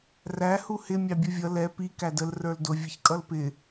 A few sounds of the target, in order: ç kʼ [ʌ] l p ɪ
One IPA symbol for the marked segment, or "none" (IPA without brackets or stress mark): ʌ